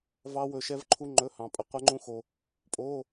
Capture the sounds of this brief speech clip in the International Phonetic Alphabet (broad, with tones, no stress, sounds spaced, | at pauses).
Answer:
v ɑ˦˥ w ɵ˧ ʃ ɛ˦˥ v ǃʰ u˦˥ ŋ͡ǃ ɵ˧˥˧ h ɑ̃˧ pʼ ə˧ qʷ ɛ˦˥ ŋ͡ǃ ũ˦˥ x o˧ | pʼ o˧˥˧